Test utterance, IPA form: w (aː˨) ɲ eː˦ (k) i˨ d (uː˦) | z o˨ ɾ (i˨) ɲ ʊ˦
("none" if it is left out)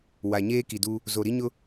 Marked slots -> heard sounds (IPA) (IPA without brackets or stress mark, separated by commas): a˨, k, u˦, i˦